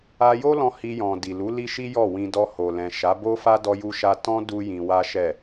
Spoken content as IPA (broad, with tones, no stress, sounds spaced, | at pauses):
a˧ j o˦ l ɔ̃˧ h i˧ j ɔ̃˨ d i˨ l u˨˦ l i˦ ʃ i˦ j ɔ˦˨ w ĩ˧ d ɔ˧ h o˨ l ɛ̃˨ ʃ a˨˦ b o˦ f a˦ d ɔ˦ j u˦ ʃ a˦ t ɔ̃˦ d u˦ j ĩ˧ w a˦ ʃ ɛ˦˨